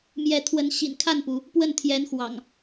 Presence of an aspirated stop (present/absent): present